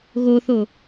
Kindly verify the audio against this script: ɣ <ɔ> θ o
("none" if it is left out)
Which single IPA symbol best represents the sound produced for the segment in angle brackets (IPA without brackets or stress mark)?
o